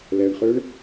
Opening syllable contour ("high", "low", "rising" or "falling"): low